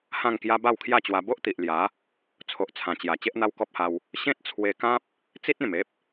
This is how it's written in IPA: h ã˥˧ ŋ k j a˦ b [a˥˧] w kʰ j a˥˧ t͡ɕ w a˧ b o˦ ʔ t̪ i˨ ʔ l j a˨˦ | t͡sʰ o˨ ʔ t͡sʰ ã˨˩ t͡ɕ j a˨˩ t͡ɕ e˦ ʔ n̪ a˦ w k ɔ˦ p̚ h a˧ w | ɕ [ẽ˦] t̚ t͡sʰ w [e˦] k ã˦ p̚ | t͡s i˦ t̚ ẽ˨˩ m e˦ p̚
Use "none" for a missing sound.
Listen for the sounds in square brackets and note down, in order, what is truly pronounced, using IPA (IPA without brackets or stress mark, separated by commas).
a˥˧, ẽ˦, e˧